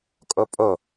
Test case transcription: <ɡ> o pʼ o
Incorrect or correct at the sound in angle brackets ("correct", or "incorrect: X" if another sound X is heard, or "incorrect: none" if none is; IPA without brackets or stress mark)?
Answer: incorrect: kʼ